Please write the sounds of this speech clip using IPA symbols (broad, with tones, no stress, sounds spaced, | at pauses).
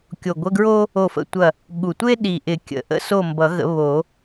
kʲ o˨˩ ɡʷ ə˧˥˧ ɡ ɹ o˥ | o˦˨ f ə̰˧˥˧ tʷ ɐ˦˨ | ɠ u˨˩ tʷ e˥ ɗ i˨˩ ʔ ɪ˨˩˦ kʲ ə̰˨˩˦ ʔ ə̰˧˥˧ s o˦˨ m b ʌ˨˩˦ ɣ ə̰˨˩˦ β o˨˩˦